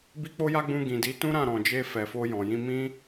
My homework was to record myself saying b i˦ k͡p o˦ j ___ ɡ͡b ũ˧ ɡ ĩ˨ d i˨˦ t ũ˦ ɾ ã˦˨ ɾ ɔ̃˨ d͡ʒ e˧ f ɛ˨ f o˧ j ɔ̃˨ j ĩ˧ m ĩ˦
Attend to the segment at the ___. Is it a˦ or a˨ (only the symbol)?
a˦